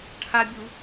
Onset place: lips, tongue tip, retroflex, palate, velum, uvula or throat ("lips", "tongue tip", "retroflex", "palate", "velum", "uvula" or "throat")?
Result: retroflex